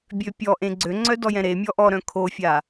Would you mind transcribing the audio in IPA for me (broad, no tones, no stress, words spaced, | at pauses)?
bʲøpʲɔʔẽ ɡ͡ǀøŋ͡ǀœ dɔjɛ̃ɾemʲɔ ʔɔɾœ̃ kʰofʲa